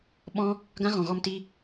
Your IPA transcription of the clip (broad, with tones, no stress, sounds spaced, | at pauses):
ɓ ɔ̃˦ | ɡ ã˦ ɣ ɔ̃˨ ɣ ɔ˧ m t i˧